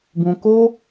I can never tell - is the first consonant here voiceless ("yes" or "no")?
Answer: no